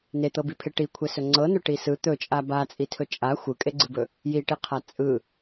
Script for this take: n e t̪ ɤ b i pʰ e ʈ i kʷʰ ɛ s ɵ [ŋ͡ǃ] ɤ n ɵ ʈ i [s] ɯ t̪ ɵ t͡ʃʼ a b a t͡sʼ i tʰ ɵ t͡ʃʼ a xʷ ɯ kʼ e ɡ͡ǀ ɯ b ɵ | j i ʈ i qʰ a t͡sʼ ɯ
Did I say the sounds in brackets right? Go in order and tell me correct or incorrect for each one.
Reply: incorrect, correct

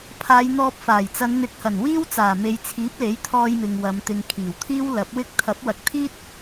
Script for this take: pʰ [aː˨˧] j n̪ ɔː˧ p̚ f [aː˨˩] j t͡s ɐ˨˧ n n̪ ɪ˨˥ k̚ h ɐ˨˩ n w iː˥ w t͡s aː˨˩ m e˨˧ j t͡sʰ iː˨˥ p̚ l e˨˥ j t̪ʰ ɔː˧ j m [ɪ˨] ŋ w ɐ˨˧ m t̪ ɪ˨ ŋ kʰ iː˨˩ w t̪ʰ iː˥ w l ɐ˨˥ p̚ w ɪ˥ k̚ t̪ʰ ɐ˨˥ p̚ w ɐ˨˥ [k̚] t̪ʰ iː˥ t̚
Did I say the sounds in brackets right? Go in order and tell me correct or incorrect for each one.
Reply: correct, correct, correct, correct

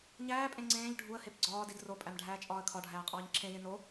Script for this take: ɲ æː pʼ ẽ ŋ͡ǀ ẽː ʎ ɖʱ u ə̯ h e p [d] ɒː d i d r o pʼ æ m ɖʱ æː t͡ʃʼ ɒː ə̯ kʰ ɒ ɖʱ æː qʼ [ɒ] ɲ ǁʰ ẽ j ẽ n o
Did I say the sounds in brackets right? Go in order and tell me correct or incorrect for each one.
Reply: incorrect, incorrect

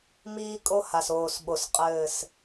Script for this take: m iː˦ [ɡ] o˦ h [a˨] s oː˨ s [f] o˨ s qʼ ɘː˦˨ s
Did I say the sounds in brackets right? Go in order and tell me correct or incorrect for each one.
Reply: incorrect, correct, incorrect

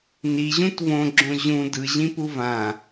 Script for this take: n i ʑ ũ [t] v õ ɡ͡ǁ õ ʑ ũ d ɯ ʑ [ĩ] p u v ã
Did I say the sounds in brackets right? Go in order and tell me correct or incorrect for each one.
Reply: correct, correct

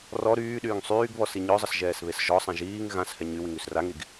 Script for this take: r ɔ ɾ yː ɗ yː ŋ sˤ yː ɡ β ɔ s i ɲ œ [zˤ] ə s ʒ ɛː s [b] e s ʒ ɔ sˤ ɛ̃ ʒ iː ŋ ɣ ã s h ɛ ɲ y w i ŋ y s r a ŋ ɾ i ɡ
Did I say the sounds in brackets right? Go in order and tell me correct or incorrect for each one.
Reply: correct, incorrect

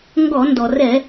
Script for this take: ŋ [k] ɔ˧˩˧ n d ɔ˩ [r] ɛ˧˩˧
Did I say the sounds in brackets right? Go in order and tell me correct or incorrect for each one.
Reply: incorrect, correct

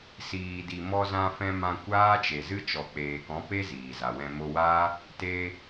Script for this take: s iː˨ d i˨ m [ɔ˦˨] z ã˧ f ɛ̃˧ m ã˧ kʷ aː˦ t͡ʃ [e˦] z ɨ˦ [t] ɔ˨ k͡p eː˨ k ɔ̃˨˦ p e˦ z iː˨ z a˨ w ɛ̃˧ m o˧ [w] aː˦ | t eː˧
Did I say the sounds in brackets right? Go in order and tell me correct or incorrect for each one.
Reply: incorrect, incorrect, incorrect, correct

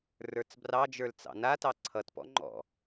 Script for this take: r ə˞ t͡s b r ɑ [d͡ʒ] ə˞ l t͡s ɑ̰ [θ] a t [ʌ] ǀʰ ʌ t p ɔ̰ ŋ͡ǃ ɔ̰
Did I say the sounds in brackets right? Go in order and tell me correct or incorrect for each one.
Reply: correct, incorrect, incorrect

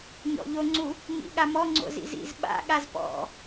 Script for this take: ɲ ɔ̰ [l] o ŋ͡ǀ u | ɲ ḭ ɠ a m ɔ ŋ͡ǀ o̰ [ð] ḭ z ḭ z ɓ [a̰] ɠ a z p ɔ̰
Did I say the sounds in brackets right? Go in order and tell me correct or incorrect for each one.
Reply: incorrect, incorrect, correct

